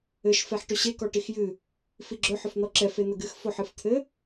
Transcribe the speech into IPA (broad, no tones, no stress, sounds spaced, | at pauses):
ɘ ʃ f ɛ ħ ʈ ɵ ɕ e k ɔ ʈ i x j ɨ | f i ɡ͡ǁ ɵ ħ ɵ f n̪ ɔ ǁ ɛ f e n̪ ə ɡ ɨ x f o ħ ɨ f t̪ʰ ɘ